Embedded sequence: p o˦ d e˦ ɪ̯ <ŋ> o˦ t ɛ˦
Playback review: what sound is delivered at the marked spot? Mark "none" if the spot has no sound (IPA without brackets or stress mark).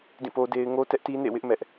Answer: ŋ